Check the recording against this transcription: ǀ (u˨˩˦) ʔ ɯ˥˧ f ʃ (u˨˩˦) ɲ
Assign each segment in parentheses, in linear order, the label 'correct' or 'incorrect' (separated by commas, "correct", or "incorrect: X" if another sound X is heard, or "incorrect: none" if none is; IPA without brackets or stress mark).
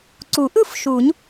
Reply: correct, correct